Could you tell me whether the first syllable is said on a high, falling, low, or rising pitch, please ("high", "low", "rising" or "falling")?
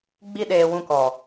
high